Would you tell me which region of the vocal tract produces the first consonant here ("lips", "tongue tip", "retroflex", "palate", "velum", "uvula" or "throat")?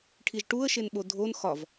retroflex